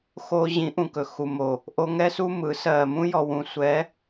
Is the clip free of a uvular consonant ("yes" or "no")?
yes